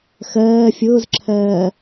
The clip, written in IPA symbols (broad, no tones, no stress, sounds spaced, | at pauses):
x ɜː fʲ ʊː z ǁʰ ɜː